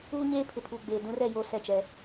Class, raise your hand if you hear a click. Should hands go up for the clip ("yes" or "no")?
no